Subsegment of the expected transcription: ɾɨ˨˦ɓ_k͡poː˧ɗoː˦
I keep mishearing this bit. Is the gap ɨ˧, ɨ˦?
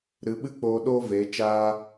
ɨ˦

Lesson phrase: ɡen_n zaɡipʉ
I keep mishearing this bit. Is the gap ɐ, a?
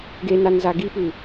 a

